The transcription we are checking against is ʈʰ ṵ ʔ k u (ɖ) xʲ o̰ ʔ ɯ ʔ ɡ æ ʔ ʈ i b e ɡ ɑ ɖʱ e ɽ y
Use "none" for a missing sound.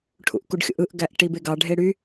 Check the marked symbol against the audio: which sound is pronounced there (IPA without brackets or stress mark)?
ɖ